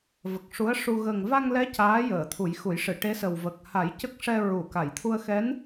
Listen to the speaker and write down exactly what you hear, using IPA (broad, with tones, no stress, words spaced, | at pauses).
və˨˩k̚ʂu˧˥ə̯ʂu˧ ɣə˨˩ŋva˧ŋlɛ˧˥ caː˧˥jəː˨˩˨ t̪ʰu˨˩˦jxu˨˩˦jʂɨ˨˩˨ ʈe˧˥sə˨˩w və˨˩k̚ha˨˩˦j cə˦˥k̚ʂɛ˧ ɹu˨˩˨ ka˨˩˨jt̪ʰu˧ə̯ xɛ˧˥n